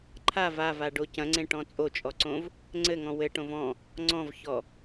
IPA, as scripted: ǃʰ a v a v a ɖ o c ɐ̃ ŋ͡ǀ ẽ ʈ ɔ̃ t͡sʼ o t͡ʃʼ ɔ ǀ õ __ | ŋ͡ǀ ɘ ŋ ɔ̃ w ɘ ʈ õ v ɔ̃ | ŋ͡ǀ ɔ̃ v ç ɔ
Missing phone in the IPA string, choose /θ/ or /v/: v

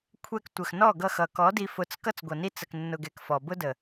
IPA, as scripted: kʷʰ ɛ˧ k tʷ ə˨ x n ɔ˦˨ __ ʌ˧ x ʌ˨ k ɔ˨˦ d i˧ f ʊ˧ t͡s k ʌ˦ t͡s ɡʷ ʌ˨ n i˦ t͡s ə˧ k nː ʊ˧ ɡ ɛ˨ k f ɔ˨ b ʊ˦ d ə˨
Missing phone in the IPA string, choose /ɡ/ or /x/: ɡ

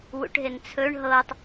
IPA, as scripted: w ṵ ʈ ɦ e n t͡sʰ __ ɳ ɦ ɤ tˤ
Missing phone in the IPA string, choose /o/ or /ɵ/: ɵ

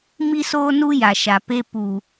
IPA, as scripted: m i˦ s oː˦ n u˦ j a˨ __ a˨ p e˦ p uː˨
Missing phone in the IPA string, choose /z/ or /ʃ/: ʃ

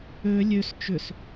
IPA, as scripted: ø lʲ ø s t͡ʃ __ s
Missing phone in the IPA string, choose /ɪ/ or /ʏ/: ʏ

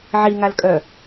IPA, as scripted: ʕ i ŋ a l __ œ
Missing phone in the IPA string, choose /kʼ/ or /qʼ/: kʼ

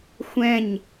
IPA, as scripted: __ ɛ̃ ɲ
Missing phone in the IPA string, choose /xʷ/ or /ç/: xʷ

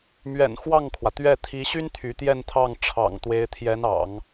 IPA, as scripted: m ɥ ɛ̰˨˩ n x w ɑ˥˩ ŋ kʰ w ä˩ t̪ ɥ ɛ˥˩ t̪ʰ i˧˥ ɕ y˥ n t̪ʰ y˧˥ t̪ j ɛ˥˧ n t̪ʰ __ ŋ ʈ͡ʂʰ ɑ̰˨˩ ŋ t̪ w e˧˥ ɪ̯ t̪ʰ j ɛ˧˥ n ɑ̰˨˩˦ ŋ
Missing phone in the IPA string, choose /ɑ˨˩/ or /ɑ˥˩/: ɑ˥˩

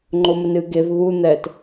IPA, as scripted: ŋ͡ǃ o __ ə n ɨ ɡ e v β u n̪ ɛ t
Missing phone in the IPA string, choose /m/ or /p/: m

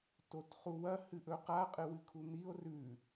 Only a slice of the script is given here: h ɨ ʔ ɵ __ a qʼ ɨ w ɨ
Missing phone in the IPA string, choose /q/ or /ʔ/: q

